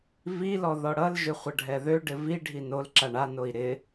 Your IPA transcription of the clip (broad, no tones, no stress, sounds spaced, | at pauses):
v i l ɔ ð ɔ ɽ ʌ l ʒ ʏ χʷ ʌ ɖʱ ɛ ð ø ɖ ɪ v i ɖʱ i n o l ǁ a ɳ a n o i̯ ɾ ɪ